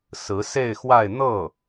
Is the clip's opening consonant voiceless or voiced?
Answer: voiceless